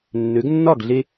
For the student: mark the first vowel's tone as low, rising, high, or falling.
rising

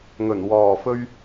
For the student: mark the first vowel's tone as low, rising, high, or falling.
low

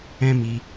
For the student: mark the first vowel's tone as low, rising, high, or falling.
high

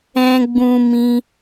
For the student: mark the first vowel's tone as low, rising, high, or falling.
high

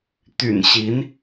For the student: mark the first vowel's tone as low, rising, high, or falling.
low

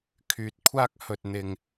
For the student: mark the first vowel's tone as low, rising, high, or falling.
low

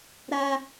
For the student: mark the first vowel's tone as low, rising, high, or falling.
high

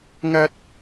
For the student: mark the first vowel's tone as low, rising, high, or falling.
high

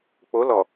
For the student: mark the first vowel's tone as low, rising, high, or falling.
rising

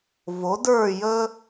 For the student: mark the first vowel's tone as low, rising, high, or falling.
rising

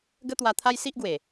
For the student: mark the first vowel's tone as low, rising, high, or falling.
high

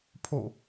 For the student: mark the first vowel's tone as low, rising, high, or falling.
falling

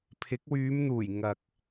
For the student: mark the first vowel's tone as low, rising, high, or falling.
rising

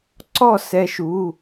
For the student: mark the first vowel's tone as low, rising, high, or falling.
falling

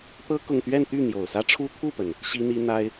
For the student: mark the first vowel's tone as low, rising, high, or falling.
high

